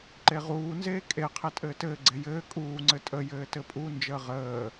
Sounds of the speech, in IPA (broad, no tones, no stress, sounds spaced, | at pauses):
ǃ e ʁ uː n z eː kʼ e qʰ e tʼ ɘː t ɘː ɡ͡ǀ e j ɘː kʼ uː ŋ͡ǀ ɘ tʼ ə j ɘː t ɘ pʼ u n d͡ʒ əː ʁ əː